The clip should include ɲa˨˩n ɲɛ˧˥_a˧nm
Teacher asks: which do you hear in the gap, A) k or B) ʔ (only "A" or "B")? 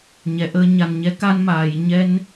A